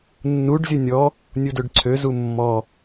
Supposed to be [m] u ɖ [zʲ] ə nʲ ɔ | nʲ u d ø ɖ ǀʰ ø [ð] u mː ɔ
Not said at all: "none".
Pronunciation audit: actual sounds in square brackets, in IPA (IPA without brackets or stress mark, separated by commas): nː, zʲ, z